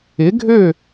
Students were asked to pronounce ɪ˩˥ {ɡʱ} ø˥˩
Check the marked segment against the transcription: correct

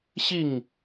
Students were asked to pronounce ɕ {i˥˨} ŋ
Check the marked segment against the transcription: correct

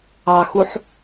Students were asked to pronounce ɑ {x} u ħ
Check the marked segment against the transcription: correct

